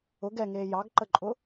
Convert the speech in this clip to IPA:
ʊ ɡ ɛ ŋ eː j ɑ ɡ ǃ ə ǃʼ ʊ

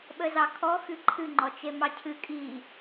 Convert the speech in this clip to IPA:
ɓ ə z ɑ kʰ ɔ x ɨ ǃʰ ɨ ŋ͡ǃ ɔ t͡ʃ e m ɑ cʰ ɨ kʼ i

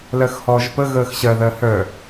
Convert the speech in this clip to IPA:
l ɜ x h ɔː ʒ p ə ɣ əː x ɕ ɜ ð ɜ h œ

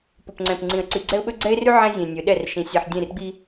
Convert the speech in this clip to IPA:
p ʊ˨ p ŋ͡ǀ ɛ̃˨ p ŋ͡ǀ ĩ˨ ə̯ ǀ i˨ ɡ͡ǀ ɛ˦ ʊ̯ ɓ ɵ˦ ɡ͡ǀ ɛ˦ ɪ̯ r y˦ ʕ ɛ̃˦ zʲ ẽ˨ nʲ ɵ˨˦ ɗ ɛ˦˨ r ʃ ĩ˨ sʲ e˨ ħ dʲ ẽ˦˨ r ɡ͡b i˦

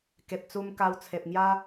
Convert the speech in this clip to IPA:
k e˨ p̚ t͡s u˧ m k a˧ w t͡sʰ e˨ p̚ ŋ j a˦

